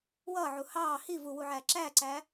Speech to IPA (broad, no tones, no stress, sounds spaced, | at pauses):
w ʌː ʕ u h ɑː h i v u w u ʕ æː ǁ æː ǀ æː